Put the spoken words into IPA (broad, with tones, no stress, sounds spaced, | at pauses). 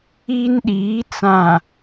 i˦ n ɗ iː˨˦ t͡s ã˨